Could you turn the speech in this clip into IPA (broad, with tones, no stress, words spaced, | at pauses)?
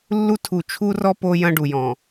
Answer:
lːu˦tʰu˨ t͡ʃʰu˦rɔ˦ po˦jɐ̃˦ɖu˨jɔ̃˨